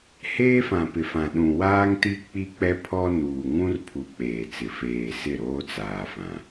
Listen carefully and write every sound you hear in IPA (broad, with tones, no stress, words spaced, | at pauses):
heː˦fã˨pɪ˨ fã˨ɗũ˨waː˦ŋti˦ k͡pi˦k͡pɛ˦ pʰɔ˦ nuː˨ŋũ˦rpʰu˨ k͡peː˨t͡sɪ˨ feː˨ sɪ˦˨ ɾoː˦t͡saː˨fã˨